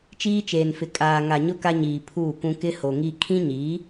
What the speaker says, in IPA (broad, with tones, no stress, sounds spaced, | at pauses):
t͡ʃ iː˦ t͡ʃ eː˨ n f ɪ˨ kʼ aː˨ ŋ a˨ ɲ ʊ˦ k a˦ ɲ iː˨ pʰ uː˦˨ k ũ˦ k ɪ˦ h o˨ ŋ i˦ kʰ ĩ˦ ɲ iː˨˦